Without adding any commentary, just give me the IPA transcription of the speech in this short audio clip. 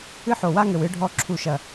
ɨ˦ ħ o˨ w a˦ ŋ ɘ˨ w ɨ˧ ɖʱ ɔ˧ ǁʰ u˨ ʃ ɐ˨

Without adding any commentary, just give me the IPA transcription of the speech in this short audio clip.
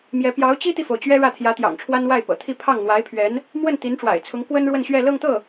m j ɛ˧˥ p j ɑ˧˥ ʊ̯ t͡ɕ i˥ t̪ i˨ f o˩ ʊ̯ t͡ɕ ɥ ɛ˥ ɻ ä˥˩ t̪ʰ j ä˧˥ t̪ j ɑ̰˨˩ ŋ ʈ͡ʂʰ w a˥ n w a˥˩ ɪ̯ p ɤ̰˨˩ t̪ʰ i˥˧ pʰ ɑ˥˩ ŋ n̪ w a˧˥ ɪ̯ pʰ ɥ ɛ˧˥ n | m w ə˥˩ n t̪ i˧˥ n ʈ͡ʂ w a̰˨˩ ɪ̯ t͡sʰ ʊ˧˥ ŋ k w ə˥ n ɻ w ə˥˧ n ɕ ɥ ɛ˥˧ l ɤ˥˧ ŋ t̪ ɤ˥˩

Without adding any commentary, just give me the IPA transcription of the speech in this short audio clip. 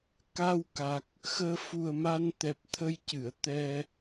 k a˧ w k a˨˩ k̚ | x əː˧ f u˨˩ ə̯ m a˧ n t̪ ɛ˨˩ p̚ t̪ʰ ə˧ j c ɨ˨˩˨ ə̯ t̪ ɛ˧

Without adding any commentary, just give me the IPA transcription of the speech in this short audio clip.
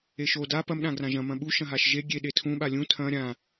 e ʃ o d a p ɐ m ɗ ã ɡ r ã ʒ ɐ̃ m ɐ̃ ɓ u ʃ ɐ̃ ɦ a ʃ ʒ e ɡʲ e ɗ e tʰ ũ ɓ a lʲ ũ tʰ ɐ̃ ɾʲ ã

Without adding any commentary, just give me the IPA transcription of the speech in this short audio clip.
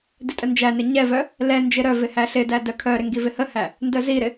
d ɪ tʼ ə n d͡ʒ æ n ɪ ɲ ɛ v œ | l ɛ n d͡ʒ ɪ ɾ œ v ɪ h æ ɬ ɪ d æ d œ kʰ œ ɾ ɪ ŋ ɡ i v ɪ h ə h æ | n d œ z i ɾ ɪ

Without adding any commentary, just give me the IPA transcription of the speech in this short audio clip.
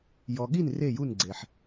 j ɔ˩ ɠ i˥˩ n r e˥˩ j u˥˩ n ɡ͡ǀ e˩ ħ

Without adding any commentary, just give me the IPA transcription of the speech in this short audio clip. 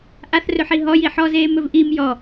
ʔ a θ r ɵ ħ i ɦ ɔ j i ħ ɔ z eː m ɵ v ʔ i m j ɔ

